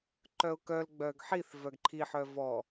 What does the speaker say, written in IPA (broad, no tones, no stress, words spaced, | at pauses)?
ǃœʊ̯kœl ɡ͡bœɡħiθ vœɡǃʰi ħœvɔ